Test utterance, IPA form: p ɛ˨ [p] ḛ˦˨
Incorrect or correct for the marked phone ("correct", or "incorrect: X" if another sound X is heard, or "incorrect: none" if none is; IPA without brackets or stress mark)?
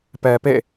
correct